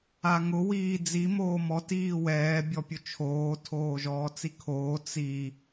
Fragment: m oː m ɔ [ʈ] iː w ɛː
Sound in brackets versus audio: incorrect: t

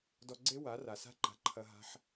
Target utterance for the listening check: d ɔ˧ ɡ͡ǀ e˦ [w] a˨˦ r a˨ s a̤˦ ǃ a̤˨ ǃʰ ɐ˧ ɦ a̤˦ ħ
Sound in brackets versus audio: correct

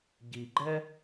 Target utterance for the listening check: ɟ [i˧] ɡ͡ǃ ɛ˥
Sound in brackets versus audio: correct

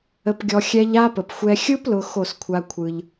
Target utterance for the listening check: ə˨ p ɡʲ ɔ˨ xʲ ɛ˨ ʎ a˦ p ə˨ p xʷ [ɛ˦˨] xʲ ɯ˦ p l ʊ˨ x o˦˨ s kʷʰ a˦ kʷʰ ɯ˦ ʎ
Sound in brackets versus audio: incorrect: ɛ˦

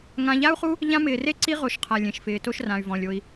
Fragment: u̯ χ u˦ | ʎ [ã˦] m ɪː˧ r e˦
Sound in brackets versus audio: correct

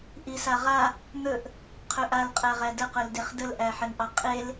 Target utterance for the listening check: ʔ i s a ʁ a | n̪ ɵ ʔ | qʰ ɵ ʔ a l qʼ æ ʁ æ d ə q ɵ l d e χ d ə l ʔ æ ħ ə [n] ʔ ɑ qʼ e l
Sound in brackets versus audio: correct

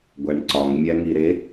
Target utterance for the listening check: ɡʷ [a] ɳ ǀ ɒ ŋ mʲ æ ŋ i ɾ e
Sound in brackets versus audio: incorrect: æ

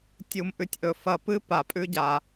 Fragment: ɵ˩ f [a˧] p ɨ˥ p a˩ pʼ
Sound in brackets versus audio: incorrect: ɐ˧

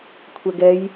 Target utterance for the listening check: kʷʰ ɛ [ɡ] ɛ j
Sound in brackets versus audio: correct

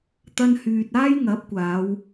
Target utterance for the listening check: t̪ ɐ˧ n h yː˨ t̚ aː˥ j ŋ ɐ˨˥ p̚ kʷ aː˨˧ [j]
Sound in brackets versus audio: incorrect: w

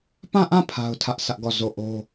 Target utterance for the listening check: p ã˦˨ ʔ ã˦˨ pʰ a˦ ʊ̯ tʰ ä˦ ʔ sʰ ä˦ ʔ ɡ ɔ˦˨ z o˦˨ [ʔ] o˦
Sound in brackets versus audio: correct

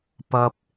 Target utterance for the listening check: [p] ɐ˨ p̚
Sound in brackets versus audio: correct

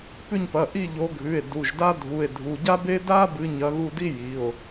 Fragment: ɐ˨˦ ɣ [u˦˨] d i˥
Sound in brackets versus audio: correct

